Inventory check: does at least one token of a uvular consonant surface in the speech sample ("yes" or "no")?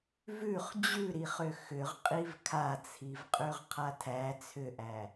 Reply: yes